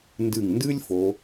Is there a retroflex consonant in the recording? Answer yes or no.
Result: no